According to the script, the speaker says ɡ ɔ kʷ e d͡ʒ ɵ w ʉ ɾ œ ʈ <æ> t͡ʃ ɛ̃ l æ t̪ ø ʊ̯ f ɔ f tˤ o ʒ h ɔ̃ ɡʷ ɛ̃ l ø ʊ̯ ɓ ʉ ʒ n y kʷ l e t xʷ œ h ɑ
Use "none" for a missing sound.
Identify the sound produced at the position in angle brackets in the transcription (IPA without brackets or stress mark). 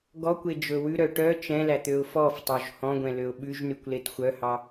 œ